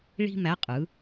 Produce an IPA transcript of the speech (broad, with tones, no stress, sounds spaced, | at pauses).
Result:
ɭ i̤˥ m æ˧˥ qʼ ɯ˩˧